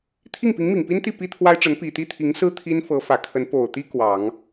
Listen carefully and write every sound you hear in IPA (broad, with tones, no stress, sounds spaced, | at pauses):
t̪ʰ i˥˩ ŋ p i˧˥ ŋ m i˨˩ ŋ p i˥ n t̪ i˥˩ p i˥ t̪ʰ w a˥ ɪ̯ ʈ͡ʂ ə˧˥ n p i˨˩ t̪ i˥˩ t̪ʰ i˧˥ ŋ s ɹ̩˥ t̪ʰ i˥ n f ɤ˧˥ f ä˨˩ kʰ ə˧˥ n p o˨˩ ʊ̯ t̪ i˥ k w ɑ˨˩˦ ŋ